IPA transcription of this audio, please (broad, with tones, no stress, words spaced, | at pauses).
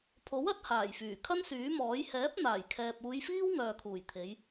pʰo˨˥wɐ˨˥t̚ haː˨˩jfyː˨˩ kʰɐ˥nsyː˨˥mɔː˨˥j hɛː˨˥p̚ n̪aː˨˩jkʰɛː˨p̚ uː˨˧jfiː˥w ŋœː˨kʰuː˨˩j t̪ʰe˨˧j